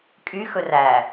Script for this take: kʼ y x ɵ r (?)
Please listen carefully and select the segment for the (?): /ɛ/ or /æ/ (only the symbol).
æ